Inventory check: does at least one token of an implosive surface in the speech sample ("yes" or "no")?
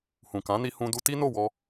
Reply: no